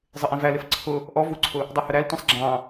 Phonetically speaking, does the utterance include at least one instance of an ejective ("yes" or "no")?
no